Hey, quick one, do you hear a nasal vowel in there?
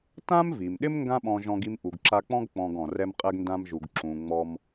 yes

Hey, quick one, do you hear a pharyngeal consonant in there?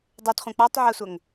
yes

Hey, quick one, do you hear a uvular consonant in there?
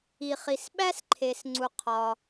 yes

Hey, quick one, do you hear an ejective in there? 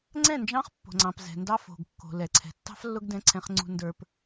no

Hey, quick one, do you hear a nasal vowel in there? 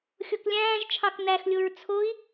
yes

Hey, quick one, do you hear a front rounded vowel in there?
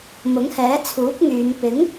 yes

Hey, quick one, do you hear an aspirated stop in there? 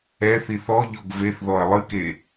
no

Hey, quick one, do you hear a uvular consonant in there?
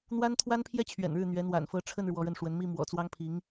no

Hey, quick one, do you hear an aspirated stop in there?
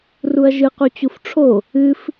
yes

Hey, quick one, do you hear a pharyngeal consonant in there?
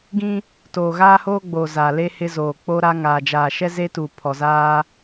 no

